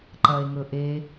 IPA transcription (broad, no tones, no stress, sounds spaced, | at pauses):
ǃ ɐ e̯ ŋ ɵ ʔ e